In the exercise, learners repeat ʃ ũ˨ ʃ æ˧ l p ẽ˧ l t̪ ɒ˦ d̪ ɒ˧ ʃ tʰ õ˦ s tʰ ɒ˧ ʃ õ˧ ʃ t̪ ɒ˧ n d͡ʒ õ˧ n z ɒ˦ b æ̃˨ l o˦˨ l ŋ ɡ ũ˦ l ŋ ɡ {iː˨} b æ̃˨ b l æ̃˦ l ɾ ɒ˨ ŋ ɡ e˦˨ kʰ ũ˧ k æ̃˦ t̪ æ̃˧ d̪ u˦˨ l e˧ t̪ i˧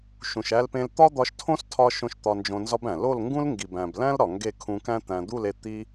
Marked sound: incorrect: i˨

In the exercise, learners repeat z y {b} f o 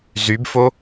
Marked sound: correct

